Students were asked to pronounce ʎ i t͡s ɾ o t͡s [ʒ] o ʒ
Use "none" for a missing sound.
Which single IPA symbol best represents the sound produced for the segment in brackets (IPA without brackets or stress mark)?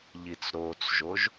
ʒ